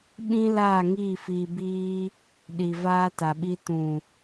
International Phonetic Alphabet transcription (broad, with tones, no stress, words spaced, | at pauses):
ɓĩ˦ laː˦˨ŋiː˦˨fiː˧ biː˧ | ɗi˨ vaː˧ta˨ɓi˧ tũ˨